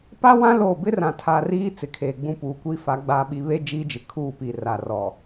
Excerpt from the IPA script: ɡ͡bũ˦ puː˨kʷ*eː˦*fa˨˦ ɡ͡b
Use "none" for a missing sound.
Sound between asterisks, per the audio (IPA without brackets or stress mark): iː˦